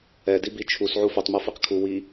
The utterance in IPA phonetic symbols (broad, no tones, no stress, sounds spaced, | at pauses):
ɛ d i b i t͡ʃʰ u s ʕ u f ɵ tˤ m u f i q kʰ u w i